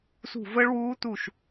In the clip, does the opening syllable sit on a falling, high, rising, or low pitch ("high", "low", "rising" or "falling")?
falling